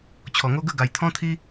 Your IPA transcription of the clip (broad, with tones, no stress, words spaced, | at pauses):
t͡ɕʰɔ˨˩ŋo˦ɡə˥˧ ɡa˨˩jt̪ʰɔ̃˦t̪ʰi˦